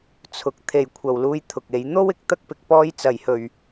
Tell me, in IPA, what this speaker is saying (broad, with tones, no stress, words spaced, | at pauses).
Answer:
t͡sʰʊ˨˥k̚ t̪ʰe˨jkʷʰɐ˨wluː˧j t̪ʰʊ˨k̚e˨˧j n̪o˥wɪ˨k̚ t̪ɐ˥k̚pɪ˨k̚ pɔː˥j t͡sɐ˨jhɵ˨ɥ